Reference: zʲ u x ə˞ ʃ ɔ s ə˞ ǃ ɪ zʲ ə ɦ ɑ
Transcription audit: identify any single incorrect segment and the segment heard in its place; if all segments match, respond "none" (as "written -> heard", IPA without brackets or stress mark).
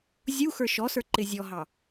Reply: ə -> ɔ